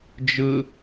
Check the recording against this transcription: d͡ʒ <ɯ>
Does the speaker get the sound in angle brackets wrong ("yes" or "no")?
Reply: no